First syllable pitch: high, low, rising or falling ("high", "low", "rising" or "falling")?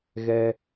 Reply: high